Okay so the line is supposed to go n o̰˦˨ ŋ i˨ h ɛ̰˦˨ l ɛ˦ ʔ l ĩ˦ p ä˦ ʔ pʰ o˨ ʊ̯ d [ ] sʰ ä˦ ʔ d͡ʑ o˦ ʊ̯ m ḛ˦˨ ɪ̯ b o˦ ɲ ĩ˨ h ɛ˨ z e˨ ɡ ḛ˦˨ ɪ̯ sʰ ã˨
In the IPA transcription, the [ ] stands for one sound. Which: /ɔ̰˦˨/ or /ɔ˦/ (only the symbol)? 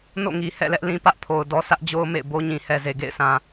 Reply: ɔ˦